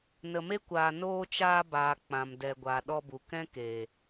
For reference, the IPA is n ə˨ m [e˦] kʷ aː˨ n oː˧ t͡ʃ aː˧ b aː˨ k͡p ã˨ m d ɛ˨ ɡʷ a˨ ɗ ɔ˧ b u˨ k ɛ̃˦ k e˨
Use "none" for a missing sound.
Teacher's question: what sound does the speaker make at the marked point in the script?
e˦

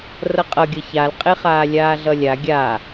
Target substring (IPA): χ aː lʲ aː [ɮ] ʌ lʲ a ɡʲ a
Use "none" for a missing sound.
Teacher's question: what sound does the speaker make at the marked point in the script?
ɮ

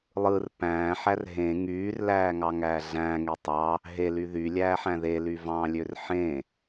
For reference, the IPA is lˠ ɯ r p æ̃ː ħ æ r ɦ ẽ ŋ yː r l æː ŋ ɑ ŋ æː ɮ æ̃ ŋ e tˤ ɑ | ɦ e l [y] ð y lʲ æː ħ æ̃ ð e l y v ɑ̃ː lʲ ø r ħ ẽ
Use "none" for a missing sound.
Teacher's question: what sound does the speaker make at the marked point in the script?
y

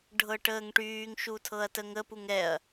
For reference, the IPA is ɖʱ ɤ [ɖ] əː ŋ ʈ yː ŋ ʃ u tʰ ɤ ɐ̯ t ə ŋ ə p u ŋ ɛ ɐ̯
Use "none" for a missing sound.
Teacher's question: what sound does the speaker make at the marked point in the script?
ʈ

